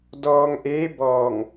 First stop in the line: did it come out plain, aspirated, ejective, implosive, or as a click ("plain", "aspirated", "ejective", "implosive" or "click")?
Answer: plain